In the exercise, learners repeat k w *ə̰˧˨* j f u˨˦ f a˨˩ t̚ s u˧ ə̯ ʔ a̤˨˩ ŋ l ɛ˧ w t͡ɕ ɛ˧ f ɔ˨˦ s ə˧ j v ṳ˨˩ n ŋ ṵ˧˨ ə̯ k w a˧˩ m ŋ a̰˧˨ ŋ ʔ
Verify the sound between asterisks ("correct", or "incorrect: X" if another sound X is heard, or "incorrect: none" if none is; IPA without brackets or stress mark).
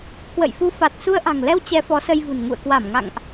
correct